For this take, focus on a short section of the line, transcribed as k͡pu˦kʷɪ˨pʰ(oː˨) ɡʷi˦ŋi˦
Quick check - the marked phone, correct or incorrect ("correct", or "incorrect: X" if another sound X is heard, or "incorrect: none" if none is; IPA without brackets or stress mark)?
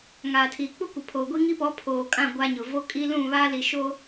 correct